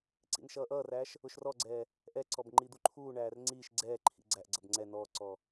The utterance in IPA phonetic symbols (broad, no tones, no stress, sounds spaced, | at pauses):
ǀ ḭ n ʃ ʌː ʔ ʌː r æː ʃ | ʊ ʃ r ɔ ɡ͡ǀ ɛː | ʔ ɛ ǀ ɔ b ŋ͡ǃ i d̪ u ǃʰ uː ɳ æː r ŋ͡ǀ iː ʃ ɡ͡ǀ ɛː ǃʰ ḭ ɡ͡ǀ æ ʔ ɡ͡ǀ ʌ b ŋ͡ǀ ɛ n ɔː ǀ ɔː